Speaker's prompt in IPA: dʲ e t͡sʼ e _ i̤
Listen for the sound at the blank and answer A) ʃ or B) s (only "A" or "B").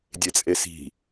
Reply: B